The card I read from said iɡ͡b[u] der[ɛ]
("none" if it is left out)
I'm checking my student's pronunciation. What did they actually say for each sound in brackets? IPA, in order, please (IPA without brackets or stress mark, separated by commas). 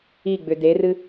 ʏ, ɨ